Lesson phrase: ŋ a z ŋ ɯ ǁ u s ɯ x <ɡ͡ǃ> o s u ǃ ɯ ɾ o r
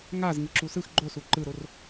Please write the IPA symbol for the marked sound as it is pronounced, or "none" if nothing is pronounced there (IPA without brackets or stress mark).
ɡ͡ǃ